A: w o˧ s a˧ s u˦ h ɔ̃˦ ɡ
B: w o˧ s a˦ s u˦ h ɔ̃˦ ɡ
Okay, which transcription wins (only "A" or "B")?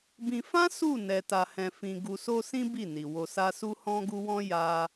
B